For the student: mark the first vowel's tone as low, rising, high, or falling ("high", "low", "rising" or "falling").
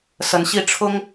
rising